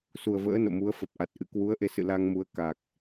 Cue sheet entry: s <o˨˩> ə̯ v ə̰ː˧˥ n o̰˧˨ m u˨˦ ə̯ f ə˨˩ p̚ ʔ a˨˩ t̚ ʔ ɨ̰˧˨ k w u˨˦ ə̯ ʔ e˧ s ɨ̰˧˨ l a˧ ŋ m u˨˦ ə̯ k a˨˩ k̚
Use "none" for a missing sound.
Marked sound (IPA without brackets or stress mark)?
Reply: u˨˩